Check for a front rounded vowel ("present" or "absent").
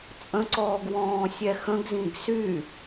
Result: present